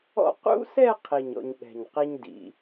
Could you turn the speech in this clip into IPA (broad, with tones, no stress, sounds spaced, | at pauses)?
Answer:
ɔ̰˥ q ṵ˥ s ɛ˥˧ qʰ i˧˩ ɲ ɔ̰˧ ɲ ɠ ɛ̤˧˩ ɲ q i˥ ɲ d ḭ˩˧